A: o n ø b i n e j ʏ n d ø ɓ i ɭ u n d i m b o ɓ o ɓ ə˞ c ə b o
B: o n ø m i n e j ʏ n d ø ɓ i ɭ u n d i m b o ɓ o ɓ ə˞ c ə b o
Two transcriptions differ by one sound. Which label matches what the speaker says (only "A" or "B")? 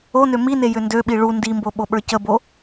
B